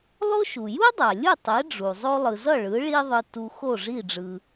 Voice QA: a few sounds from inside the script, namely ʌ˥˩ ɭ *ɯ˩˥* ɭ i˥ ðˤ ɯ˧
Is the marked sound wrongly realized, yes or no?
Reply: no